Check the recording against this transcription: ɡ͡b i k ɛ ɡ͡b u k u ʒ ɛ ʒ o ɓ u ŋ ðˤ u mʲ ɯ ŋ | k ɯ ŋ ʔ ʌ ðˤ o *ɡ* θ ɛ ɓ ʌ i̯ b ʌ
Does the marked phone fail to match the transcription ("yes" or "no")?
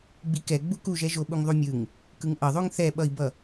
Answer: yes